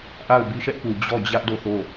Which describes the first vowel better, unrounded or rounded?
unrounded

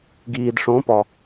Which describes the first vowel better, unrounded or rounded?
unrounded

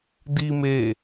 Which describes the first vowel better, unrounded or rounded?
unrounded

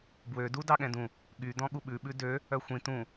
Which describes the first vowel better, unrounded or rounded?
rounded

